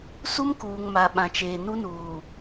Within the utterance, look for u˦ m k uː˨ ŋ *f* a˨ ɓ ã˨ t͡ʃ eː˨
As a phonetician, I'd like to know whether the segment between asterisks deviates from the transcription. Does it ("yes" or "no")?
yes